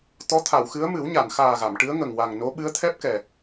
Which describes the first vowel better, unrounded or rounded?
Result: rounded